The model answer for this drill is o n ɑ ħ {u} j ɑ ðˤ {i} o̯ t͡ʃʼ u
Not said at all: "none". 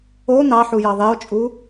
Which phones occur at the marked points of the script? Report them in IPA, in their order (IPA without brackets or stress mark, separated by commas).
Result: u, e